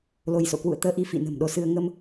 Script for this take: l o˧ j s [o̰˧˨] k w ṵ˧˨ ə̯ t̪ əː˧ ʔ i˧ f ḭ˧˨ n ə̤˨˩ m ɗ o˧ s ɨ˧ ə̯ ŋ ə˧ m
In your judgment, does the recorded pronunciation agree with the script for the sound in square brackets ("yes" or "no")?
yes